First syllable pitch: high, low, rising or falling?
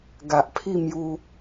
low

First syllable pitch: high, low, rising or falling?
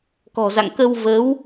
low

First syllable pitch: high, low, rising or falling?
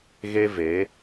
high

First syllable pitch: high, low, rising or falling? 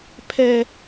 high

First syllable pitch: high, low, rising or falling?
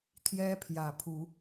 high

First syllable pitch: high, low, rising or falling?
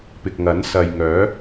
low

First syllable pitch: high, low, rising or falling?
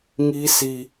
high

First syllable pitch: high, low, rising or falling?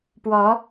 rising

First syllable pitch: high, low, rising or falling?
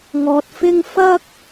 low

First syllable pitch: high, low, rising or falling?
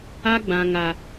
high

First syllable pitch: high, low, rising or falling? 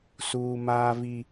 high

